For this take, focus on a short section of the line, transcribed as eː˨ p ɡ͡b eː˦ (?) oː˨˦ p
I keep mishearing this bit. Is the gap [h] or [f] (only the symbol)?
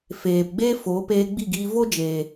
f